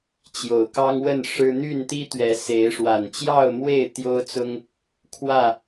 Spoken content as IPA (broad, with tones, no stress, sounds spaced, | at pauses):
t͡ɕ j o˨˩ ʊ̯ k ɑ˦ ŋ w ə˥˨ n ʂ ɻ̩˦ n̪ y˥˨ n t̪ i˦ t̪ ɥ ɛ˨˦ s e˨˦ ɪ̯ ʂ w a˨˩ n t͡ɕ j ɑ˥˨ ʊ̯ m w e˥˨ ɪ̯ t̪ j o˦ ʊ̯ t͡s ʊ˦ ŋ | kʰ w ä˥˨